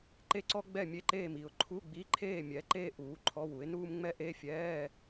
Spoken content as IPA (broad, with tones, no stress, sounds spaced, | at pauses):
ǃ e˥ ǀ ɔ˥ ɡ͡b ɛ˥˨ mʲ e˥ ǃ eː˥˨ m i˩˥ ʊ̯ ǃʰ u˧˥˧ ɡ͡b i˧˥˧ ǃʰ eː˥˨ mʲ ɛ˩˥ ǃ eː˥ ʔ uː˩˥ ǃʰ ɔ˧˥˧ w u˩˥ ɪ̯ n uː˥ m ŋ͡m ɛ˥ ʔ e˧˥˧ fʲ ɛː˧˥˧